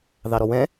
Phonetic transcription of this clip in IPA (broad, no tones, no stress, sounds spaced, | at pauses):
ð ɑ ɾ ɔ w ɛ̃